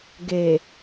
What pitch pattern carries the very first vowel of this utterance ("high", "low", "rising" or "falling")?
low